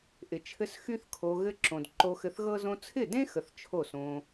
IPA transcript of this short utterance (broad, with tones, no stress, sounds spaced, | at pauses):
ʔ ɪ˨ t͡ʃʰ ɘ˧ s x y˦ θ kʰ o˧ ɣ ɘ˧ ǁ õ˨ d ǃ o˧ x ɘ˧ θ ɣ ɤ˦ z õ˧ t͡sʰ ɪ˦˨ d ẽ˦ x ə˨ θ t͡ʃʰ o˦˨ s õ˧